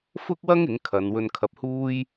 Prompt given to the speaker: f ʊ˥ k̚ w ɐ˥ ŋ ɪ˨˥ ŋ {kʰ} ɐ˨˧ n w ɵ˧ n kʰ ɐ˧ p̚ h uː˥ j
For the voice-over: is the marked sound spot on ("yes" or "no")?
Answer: yes